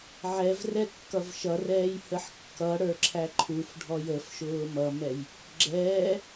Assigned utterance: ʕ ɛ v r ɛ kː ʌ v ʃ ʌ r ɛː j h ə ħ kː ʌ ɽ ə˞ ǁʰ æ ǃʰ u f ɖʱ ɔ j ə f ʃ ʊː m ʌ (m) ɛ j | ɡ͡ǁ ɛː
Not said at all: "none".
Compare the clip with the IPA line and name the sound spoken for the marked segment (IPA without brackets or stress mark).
m